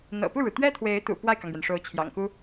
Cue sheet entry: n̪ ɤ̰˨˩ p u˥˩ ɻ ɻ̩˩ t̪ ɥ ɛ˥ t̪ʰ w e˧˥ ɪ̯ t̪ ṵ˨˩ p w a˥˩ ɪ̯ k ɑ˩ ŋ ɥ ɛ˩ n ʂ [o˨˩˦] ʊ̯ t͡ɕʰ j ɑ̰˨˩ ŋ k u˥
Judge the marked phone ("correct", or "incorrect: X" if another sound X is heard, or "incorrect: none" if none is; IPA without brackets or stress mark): incorrect: o˧˥